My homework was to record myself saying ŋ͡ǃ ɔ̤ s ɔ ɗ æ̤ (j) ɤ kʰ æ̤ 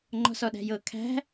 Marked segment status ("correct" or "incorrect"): correct